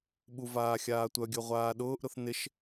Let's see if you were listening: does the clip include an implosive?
yes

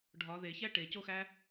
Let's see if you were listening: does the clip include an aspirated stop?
no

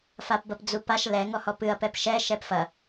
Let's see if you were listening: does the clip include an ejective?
no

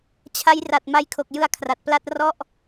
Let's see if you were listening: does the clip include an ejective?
no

